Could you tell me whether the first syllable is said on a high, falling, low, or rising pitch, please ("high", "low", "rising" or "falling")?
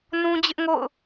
high